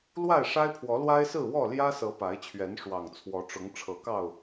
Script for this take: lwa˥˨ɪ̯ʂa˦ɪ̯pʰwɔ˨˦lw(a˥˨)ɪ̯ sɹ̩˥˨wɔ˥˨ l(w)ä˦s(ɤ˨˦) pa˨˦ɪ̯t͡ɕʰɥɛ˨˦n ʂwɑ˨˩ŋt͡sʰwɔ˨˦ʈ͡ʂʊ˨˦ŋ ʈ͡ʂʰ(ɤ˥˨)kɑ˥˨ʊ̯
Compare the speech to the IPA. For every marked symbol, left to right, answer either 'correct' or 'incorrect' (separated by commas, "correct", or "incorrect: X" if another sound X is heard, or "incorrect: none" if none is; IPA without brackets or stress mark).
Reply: incorrect: a˦, incorrect: j, correct, incorrect: ɤ˨˦